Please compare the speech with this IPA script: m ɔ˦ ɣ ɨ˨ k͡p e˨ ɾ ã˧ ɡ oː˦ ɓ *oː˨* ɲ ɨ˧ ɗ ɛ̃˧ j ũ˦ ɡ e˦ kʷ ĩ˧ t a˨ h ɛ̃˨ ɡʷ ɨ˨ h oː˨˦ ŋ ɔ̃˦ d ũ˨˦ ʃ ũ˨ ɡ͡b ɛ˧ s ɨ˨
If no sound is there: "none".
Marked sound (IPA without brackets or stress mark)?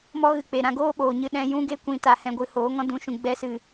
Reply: oː˨